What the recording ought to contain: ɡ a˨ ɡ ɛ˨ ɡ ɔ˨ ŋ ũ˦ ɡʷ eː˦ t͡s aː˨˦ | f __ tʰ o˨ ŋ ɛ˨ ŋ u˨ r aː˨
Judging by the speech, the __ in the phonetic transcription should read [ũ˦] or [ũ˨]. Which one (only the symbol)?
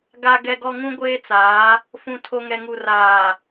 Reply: ũ˨